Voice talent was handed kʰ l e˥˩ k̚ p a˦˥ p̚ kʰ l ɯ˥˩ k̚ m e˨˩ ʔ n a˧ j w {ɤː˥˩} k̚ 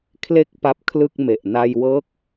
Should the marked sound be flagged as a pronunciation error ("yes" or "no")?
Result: yes